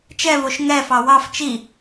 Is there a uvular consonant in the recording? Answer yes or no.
no